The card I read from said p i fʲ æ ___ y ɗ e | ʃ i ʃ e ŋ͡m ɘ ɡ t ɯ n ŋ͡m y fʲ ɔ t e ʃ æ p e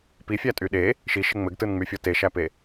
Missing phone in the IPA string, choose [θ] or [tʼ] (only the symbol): tʼ